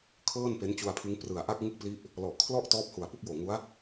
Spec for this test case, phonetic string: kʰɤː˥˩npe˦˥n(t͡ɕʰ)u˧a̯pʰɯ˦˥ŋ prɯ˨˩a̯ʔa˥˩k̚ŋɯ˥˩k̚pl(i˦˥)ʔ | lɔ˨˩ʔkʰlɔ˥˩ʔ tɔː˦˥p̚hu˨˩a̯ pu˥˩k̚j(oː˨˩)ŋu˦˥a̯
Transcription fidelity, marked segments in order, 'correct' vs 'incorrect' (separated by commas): incorrect, correct, correct